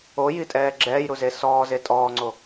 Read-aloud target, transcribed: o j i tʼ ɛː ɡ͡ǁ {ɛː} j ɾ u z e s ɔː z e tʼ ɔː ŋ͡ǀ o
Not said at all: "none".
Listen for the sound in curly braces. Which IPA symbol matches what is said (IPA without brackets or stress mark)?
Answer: ɛː